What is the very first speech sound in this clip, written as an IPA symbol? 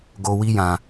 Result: ɡ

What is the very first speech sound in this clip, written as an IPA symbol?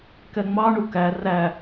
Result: k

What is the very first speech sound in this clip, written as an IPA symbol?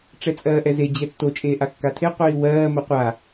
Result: ʈ͡ʂ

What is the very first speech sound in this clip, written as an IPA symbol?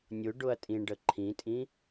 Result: nʲ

